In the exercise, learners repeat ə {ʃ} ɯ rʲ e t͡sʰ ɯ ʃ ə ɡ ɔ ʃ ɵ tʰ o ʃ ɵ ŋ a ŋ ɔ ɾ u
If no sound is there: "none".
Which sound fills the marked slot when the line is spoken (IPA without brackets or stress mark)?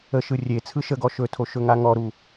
ʃ